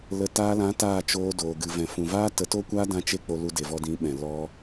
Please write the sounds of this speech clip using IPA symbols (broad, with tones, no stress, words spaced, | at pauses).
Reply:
lə˨ taː˧lã˨˦ taː˦˨t͡ʃoː˧doː˨ ɡɨ˨vɛ̃˨fũ˨vaː˦ tə˨˦to˦kʷaː˦ dã˦t͡ʃe˦ k͡po˧lu˧de˨vɔ˧ dĩ˨˦ɓɛ̃˨ lɔ˦